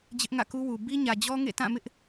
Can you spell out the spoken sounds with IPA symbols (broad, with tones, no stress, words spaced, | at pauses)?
d͡ʑɪ˦ʔŋä̰˦˨ku˦wu˨ bi˦ɲä˨d͡ʑɔ˦ ŋḛ˦˨tã˦˨mɪ˦ʔ